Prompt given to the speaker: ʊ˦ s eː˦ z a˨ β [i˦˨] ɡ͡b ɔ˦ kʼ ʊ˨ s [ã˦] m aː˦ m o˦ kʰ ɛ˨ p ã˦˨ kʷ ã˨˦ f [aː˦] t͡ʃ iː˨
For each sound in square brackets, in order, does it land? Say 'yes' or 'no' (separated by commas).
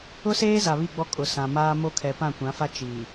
yes, no, no